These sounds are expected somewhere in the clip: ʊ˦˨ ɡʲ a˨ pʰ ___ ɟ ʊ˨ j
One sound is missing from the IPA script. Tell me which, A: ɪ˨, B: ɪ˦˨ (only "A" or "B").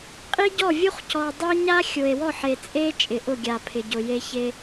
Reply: A